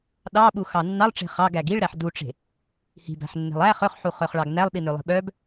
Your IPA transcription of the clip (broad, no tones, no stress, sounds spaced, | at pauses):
ɗ ɑ ɓ u x ɑ nː ɑ lˠ ʈ͡ʂ e̤ χ ɑ ɡ æ ɡ i ɭ ɾ æ ħ d u ʈ͡ʂ e̤ | h i̤ b æ̤ ħ nː e̤ lˠ æ χ œ χ ħ u χ œ χ ɭ ɑ ɡ n æ lˠ ɗ i n ø lˠ i̤ ɓ œ b